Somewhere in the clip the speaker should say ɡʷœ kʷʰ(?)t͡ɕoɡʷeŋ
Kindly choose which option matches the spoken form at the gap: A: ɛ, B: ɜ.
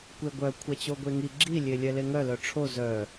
A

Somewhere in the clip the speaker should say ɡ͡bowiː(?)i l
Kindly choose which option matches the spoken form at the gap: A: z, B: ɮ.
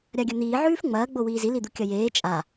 A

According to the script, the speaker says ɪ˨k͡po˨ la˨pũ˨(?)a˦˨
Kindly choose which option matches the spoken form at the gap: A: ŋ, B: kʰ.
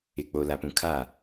B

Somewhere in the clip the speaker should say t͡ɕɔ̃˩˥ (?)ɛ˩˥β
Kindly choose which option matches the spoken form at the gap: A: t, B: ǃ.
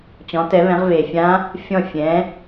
A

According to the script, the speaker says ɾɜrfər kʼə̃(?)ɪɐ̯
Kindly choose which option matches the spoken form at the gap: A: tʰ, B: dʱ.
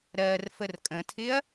A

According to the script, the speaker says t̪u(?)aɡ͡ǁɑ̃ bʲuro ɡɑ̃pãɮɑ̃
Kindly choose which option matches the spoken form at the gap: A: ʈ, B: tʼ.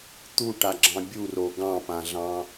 A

